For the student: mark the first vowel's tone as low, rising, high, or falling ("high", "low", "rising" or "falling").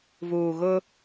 low